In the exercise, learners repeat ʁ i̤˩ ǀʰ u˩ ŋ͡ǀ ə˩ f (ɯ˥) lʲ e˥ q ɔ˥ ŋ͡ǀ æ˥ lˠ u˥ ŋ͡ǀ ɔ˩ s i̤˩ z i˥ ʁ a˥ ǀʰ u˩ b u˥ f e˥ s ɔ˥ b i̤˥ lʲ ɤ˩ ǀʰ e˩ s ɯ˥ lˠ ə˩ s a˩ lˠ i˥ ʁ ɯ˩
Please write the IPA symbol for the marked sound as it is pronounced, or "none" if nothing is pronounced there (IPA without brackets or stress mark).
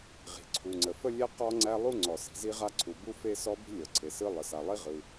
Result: ə˥